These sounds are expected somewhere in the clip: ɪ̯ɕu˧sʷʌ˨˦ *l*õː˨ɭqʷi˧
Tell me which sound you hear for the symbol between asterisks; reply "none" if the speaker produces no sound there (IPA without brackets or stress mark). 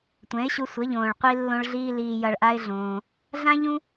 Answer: ʎ